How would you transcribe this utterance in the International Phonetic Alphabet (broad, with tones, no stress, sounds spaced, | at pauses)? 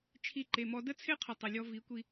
t͡ʃʰ i˧ ǃ e˨ m ɔ˧ d ə˦ t͡sʰ e˦ qʰ ə˨ tˤ ə˨ lʲ ɔ˧ v i˨˦ kʷ i˧